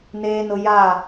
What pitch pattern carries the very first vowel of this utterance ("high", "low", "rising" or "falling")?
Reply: low